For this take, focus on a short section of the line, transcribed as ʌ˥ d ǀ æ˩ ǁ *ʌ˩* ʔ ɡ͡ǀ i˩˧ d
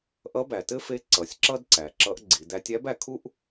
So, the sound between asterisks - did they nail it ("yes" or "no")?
no